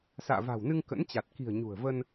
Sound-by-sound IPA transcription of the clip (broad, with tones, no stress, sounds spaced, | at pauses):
s a̰ː˧˨ v a̤˨˩ w n ɨ˧ ŋ k ə̰˧˥ n t͡ɕ a˨˩ t̚ k i̤˨˩ ə̯ ɲ ṳ˨˩ ə̯ v ə˧ n